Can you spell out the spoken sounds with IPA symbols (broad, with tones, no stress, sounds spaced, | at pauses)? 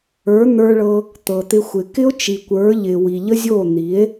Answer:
ə˞˨˦ n̪ ə˞˧ ɭ ɤ˧ | t̪ ɤ˨ t̪ ɪ˧ xʷ ɪ˨ k ɪ˦ o̯ t͡ʃ i˨ kʷ ə˞˨˦ ʎ ɪ˨ w i˨ ʎ ə˦ zʲ o˦˨ n̪ i˨˦ e̯